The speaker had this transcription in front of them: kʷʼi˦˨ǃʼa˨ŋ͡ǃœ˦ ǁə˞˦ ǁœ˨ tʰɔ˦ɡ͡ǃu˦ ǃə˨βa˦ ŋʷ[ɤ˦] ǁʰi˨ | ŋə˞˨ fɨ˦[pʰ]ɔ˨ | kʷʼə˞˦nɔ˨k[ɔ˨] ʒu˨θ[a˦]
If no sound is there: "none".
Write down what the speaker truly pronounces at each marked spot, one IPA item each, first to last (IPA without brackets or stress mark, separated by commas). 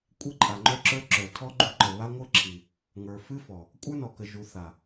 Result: ɤ˦, f, ə˨, a˨